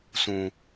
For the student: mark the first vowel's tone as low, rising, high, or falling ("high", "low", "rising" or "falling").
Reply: low